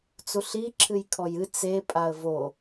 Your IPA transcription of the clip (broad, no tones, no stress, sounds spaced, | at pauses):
t͡s u ɬ i ǁʰ ɨ j kʰ ɔ j ɨ t͡s e pʼ a ə̯ v o